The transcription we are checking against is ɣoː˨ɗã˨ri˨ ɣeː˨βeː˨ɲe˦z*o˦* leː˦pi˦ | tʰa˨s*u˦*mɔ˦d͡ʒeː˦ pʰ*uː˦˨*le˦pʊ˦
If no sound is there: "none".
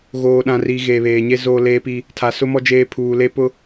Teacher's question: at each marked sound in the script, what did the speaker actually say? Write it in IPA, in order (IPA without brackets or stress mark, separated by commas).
oː˦, ʊ˦, uː˨